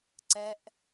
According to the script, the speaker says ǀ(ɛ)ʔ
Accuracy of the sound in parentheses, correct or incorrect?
correct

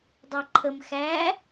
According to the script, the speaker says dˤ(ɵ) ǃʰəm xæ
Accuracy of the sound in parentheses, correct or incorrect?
incorrect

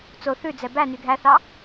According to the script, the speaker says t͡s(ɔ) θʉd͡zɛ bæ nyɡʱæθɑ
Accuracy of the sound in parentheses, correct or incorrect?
incorrect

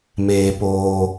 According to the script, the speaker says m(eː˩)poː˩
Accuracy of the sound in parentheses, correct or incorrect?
correct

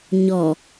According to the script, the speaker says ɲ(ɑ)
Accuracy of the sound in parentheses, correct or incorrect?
incorrect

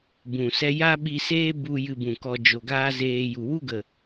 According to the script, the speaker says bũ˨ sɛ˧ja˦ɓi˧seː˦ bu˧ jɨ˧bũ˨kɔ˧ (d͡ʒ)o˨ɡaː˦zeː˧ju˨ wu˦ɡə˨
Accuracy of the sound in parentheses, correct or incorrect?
correct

